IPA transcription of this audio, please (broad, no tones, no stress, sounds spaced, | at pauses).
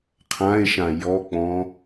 qʰ ã e̯ ʃ ã j ɔ k͡p ɔ̃